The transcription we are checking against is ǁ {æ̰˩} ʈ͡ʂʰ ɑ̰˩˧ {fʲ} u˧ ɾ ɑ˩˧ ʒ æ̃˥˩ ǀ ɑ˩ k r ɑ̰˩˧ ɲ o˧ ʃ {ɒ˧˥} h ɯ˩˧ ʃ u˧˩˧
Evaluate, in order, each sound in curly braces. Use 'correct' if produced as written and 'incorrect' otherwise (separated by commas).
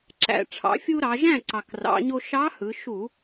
correct, correct, incorrect